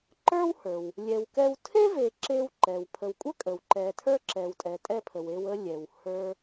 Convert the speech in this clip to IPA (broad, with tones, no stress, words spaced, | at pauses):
ǃə˞˥whə˞˩w | lʲɛ˨wkɛ˦w tʰe˥ve˨ ǁe˦w ǃɛ˩wpʰə˨wkʷʼə˥ kʼə˩wǃɛ˨ tʰə˞˥ǁɛ˨wtʼɛ˨ tʼɛ˥pʰə˨we˦wə˥ lʲɛ˩w hə˞˦